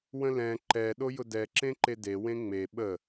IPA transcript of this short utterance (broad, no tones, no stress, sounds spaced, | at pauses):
w ə̃ l ɛ̃ ǃ ɛ ɗ o j ʊ d ɛ ǁ ẽ ǃ e d e w ẽ ŋ͡m e ɓ ə